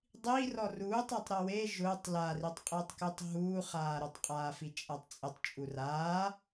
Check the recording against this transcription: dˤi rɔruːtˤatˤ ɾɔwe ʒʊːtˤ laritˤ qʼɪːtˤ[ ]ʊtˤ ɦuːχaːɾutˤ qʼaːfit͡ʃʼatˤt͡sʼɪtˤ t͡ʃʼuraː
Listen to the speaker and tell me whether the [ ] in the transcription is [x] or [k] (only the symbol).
k